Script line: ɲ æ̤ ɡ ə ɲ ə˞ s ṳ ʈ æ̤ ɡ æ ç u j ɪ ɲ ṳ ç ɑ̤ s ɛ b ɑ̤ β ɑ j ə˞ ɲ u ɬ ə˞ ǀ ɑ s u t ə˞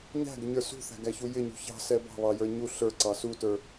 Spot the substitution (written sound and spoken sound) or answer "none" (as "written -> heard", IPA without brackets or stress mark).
ʈ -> θ